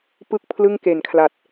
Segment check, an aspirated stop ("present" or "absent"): present